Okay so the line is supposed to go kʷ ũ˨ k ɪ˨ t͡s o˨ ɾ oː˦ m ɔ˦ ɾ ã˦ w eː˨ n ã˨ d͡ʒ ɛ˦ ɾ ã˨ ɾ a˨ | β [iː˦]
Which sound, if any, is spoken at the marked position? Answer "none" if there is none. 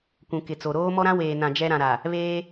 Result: eː˦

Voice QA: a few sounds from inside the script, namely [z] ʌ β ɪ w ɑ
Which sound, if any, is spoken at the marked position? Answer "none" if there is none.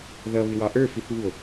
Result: ð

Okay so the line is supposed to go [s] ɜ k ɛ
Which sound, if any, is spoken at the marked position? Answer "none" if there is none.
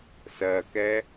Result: s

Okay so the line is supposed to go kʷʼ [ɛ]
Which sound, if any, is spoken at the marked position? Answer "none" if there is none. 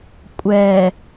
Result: ɛ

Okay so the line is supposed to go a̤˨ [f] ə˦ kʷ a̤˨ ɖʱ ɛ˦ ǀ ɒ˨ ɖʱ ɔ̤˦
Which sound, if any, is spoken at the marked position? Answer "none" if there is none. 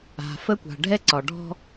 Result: f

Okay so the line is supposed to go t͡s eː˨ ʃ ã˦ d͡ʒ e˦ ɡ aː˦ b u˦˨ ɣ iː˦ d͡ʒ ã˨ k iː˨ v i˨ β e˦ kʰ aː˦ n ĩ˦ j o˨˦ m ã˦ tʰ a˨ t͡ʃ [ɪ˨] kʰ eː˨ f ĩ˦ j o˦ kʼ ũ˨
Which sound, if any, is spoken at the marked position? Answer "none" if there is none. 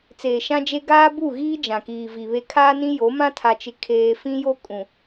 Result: ɪ˨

